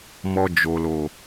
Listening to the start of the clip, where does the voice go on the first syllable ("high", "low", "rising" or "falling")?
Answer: low